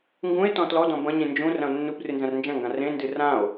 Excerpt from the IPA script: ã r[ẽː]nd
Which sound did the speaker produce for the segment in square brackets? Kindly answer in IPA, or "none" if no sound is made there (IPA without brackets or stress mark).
ẽ